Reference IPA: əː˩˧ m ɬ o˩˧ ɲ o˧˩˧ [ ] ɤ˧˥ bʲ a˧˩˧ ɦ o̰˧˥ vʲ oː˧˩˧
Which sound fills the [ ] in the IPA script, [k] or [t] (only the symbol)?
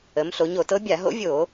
t